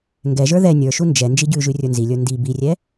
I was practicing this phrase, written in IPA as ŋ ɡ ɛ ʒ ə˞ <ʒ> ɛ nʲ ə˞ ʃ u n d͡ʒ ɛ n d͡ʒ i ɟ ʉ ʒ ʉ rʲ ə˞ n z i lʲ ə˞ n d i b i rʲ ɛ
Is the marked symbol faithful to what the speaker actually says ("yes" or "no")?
no